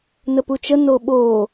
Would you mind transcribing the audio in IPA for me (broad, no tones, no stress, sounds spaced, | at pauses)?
n ə p u t͡ʃ ə n o ɓ oː